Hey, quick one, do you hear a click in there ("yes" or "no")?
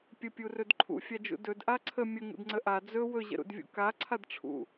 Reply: yes